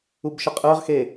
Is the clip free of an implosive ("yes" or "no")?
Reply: yes